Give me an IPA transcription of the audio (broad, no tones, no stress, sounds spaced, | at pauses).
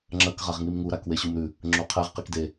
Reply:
ŋ͡ǁ ɐ k ʁ a ʁ ŋ i m ŋ u ɾ a k w e ɕ u m ɾ ʉ | ŋ͡ǁ o qʰ e ʁ q i k d e